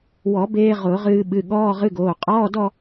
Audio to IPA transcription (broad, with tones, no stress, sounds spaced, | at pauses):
w ɔ˨˩˦ b eː˧ ʁ ʊː˨˩˦ ʁ ɨː˧ ɓ ɨ˩˧˩ ɠ ɔː˧˥˧ ʁ ɨ˧˥˧ ɡ oː˩˧˩ qʼ ɔː˧˥˧ d ɔ˥˧